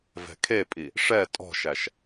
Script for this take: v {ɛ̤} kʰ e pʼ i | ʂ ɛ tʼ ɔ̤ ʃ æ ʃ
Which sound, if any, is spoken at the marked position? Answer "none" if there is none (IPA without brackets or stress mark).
ɛ̤